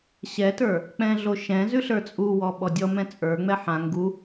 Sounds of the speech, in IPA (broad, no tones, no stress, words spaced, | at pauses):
ɕɛtə˞ | k͡pɛ̃ɮoʃɛ̃zʉ ɬə˞t͡sʼuwɔ ɓɔdʲɔmɛ̃ t͡sʼə˞ŋ͡mɛ ħã ŋɡu